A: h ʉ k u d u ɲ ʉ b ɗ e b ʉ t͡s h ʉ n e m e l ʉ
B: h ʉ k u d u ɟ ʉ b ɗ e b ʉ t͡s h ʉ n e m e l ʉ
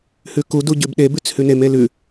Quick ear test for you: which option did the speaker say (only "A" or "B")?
B